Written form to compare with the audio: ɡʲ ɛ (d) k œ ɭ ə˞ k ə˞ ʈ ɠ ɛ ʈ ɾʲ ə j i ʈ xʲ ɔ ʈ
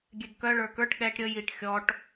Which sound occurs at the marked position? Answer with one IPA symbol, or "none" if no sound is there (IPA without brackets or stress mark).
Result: ɡ